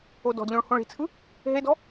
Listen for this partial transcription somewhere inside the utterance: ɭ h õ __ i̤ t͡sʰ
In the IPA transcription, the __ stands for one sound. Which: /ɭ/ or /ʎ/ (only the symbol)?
ɭ